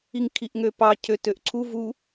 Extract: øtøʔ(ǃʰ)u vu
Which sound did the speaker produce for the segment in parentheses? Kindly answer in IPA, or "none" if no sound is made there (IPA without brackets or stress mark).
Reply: ǀʰ